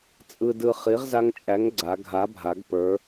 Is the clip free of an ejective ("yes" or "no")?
no